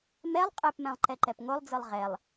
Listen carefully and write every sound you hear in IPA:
mɛlˠ qʼɛpmɛ̃lˠ ǃɛǃɛpŋolˠd͡zɯlˠ ʁɛlˠ

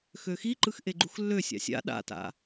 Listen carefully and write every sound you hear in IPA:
xøxiǃɯx ʔeɡ͡ǃuxlːøsʲa̰ sʲa̰ ɗa̰ta̰

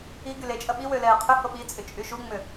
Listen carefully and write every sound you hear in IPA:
i ɡylet͡ʃʼɐ ɓiwø lɛːqʰʏho ɓit͡sʼʏ t͡ʃʼyʃuŋ͡mʏ

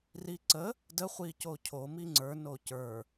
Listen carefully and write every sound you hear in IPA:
riǀə | dəχʷi cocʰo miŋ͡ǀə˞ nocə˞

